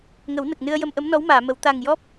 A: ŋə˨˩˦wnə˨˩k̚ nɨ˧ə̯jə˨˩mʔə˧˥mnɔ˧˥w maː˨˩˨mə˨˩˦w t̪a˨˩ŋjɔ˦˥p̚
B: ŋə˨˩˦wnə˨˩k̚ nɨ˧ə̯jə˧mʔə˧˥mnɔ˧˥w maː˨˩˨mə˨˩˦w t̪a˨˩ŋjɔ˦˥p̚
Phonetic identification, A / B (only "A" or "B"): B